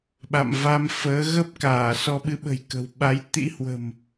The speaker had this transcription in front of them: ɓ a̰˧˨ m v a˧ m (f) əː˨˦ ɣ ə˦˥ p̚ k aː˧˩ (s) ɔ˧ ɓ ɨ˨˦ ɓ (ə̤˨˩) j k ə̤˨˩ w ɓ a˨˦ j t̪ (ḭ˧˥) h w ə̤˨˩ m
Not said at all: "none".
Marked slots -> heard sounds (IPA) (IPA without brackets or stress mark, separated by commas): f, s, ə̤˨˩, ḭ˧˥